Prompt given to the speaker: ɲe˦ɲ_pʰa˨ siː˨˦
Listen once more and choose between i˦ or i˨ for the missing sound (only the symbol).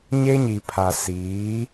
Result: i˨